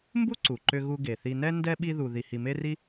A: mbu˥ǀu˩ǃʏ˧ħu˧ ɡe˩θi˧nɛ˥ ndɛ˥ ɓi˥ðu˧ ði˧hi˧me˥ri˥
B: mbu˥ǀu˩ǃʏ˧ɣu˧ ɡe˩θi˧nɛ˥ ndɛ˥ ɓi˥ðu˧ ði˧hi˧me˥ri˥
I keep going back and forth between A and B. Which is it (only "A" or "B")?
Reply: B